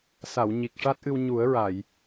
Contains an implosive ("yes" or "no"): no